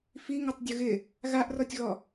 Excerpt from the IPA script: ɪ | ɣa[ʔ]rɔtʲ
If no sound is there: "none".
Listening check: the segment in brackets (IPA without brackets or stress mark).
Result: ʔ